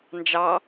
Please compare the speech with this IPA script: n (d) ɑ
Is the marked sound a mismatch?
yes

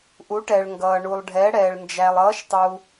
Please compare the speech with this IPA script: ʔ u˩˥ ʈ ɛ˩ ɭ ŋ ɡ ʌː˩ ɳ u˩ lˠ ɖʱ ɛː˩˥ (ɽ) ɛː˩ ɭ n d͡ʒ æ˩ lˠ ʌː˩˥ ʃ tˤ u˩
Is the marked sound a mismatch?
no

